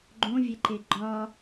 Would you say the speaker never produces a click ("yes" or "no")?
no